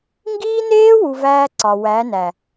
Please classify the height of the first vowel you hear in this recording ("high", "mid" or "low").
high